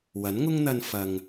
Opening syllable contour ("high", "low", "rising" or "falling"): rising